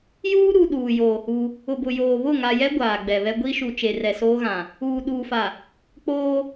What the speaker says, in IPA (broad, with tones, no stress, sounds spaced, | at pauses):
j uː˦ ɾ u˨ ɗ uː˨ j oː˨ h u˦ | ʊ˨ b ʊ˨ j oː˨ β ʊ˦˨ ŋ a˨ j ɛ˦ ɡʷ aː˨ ɡ͡b ɛ˨ β ɛ˦ ɡʷ i˦ ʃ u˨ t͡ʃ e˨ r ɛ˨ s oː˦ ɣ ã˨ | uː˨ ɗ uː˨ f a˨ | k͡p oː˦